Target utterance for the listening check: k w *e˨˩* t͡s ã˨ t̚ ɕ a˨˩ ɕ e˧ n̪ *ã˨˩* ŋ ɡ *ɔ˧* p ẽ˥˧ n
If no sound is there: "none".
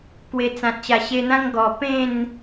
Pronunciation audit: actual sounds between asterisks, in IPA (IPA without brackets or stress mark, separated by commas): e˨˩, ã˦, ɔ˨˩